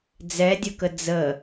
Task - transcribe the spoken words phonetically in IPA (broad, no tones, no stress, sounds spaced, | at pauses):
d͡z ɛ dʲ ə k ə d͡z ə